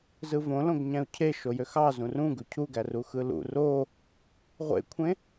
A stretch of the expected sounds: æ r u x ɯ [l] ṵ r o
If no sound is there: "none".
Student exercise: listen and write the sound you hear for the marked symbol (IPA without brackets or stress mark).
l